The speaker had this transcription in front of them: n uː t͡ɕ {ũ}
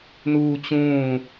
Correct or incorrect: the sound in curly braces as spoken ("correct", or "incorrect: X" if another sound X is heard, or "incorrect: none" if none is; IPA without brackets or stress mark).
incorrect: ũː